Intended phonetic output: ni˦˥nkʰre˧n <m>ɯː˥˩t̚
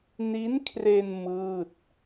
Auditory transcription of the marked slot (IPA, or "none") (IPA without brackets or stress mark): m